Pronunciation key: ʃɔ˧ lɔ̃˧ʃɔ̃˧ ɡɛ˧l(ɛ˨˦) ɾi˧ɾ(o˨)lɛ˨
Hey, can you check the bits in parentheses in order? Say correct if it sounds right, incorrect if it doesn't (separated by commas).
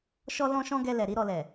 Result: incorrect, incorrect